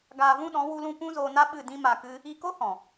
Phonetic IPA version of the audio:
ɡaː˧vũ˦ɗɔ̃˨˦ wu˧lũ˧ pũ˦zoː˧na˦ ɓɨ˦˨dĩ˦ma˧kɨ˦ | i˧ko˦hɔ̃˨

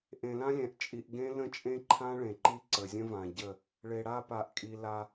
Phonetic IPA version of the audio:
ʔẽ˨lã˦lʲɛ̃˨ʔ t͡ʃʼi˨ʔɡẽ˦ lə̃˦t͡ʃʼẽ˦ǃʰã˦ ɭẽ˨ǃi˦ ǀə˨zʲə̃˦vã˨ɟə˦˨ | ɭe˨ɽa˦˨pa˨ʔkʼi˨ la˦

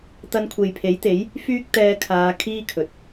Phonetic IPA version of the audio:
t̪ɐ˧nkʷʰe˨jpʰe˨˥jt̪e˨˥j | fyː˥k̚t̪ɛː˧kʰaː˨˧ kʰiː˥kʰɵ˨t̚

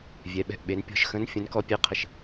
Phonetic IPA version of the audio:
vʲɛ˩˧ɓɛ̤˧˩ʔɓe˩˧n pʲɔ̤˧ʃxə̃˧˥n fʲə̃˧˥nkɔ˧˥pʲe˧˥qʰə˧˩ʃ

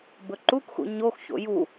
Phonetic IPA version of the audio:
bɵǃukxṵ ɲoxço̰ ju

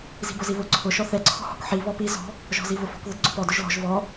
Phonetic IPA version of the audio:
zi̤bʊziβʊ ǀʰʊ ʃɔθɛ ǀʰɔ̤hɔ̤kħi βɔpi zɔ̤ | ʒɔ̤zivʊfɔ̤k ðʊdɡ͡ǀʊpɔd ʊʒlɔ̤ʒ vɔ

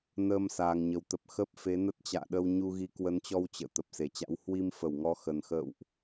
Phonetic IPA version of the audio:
nəː˧m saː˨˩ŋɲə˨˩wt̪ə˨˩p̚ xə˦˥p̚fe˨˦ nə˦˥t̚t͡ɕa̰ː˧˨ɗə˧w ɲu˧ɣi˨˦kwə˨˦nt͡ɕɔ˧w t͡ɕə̰ː˧˨ t̪ə˨˩p̚se˧˩t͡ɕa̰˧˥w hwi˧mfə˧˩wŋɔ˨˦ xə˨˩nxə̰ː˧˨wʔ

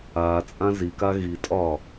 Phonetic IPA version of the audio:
aːt͡sʼã zika ɣitʼɒː

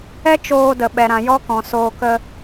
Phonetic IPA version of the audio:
ɛ˦ t͡ʃoː˧ də˨ɓɛ˨ɾã˨ jɔ˦kɔ̃˨ soː˧kə˦

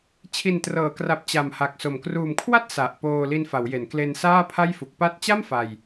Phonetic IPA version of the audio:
t͡ɕʰi˨˩ntrɤː˩˦kra˨˩p̚ t͡ɕa˨˩mha˨˩k̚ so˨˩m kruː˨˩mkʰwa˥˩t̚ sa˨˩ʔ poː˧ li˧nfa˩˦wje˩˦nkle˧n saː˥˩pʰa˥˩jfu˨˩k̚ pa˦˥t̚t͡ɕa˥˩m fa˧j

